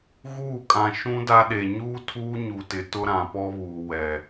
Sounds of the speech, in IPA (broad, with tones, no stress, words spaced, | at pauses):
ɣuː˦˨kʼã˨ ʃũ˦da˦ɗe˨ ɲuː˦tʰuː˦ɲu˨tɪ˨ tʊ˦ɾã˨pɔ˦βuː˨ wɛ˨